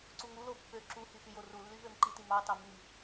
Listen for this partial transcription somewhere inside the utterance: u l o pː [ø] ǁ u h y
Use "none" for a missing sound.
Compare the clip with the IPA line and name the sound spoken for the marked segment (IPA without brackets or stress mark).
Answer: ø